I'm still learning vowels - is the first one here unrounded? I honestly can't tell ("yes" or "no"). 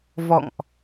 no